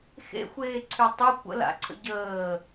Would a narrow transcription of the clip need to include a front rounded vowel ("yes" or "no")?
yes